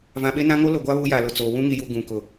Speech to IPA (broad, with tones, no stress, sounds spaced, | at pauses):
v ã˨ ɓ e˦ n ã˦ ŋ o˦ l o˨ ɡʷ a˦ β u˦ j a˨ l ʊ˨ t͡s oː˨ w ũ˦ ŋ i˨ j u˨ ɡ ũ˨ k ʊ˨